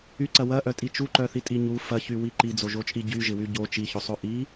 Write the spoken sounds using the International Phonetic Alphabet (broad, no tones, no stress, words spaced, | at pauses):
yǀɐ wɐʔœtʼi t͡ʃuǃœθitʼi ɲu fɐçywi ǃid͡zoʒot͡ʃʼi ɟyʒɪwy ɟo t͡ʃiçosˤo ʔi